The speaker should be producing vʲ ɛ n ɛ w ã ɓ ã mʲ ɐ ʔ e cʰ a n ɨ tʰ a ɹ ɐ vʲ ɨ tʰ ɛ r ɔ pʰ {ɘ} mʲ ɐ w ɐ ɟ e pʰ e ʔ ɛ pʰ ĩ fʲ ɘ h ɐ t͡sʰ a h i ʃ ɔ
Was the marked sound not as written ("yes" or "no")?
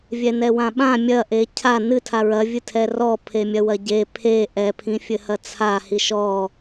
yes